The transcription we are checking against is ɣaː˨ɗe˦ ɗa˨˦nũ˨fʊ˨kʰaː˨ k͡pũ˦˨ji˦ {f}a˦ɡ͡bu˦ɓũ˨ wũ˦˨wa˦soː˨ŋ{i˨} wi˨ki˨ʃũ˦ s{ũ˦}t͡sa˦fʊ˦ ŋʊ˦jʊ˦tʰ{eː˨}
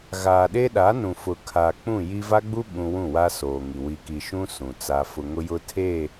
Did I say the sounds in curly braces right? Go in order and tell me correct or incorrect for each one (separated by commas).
incorrect, correct, incorrect, incorrect